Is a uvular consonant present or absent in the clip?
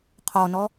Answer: present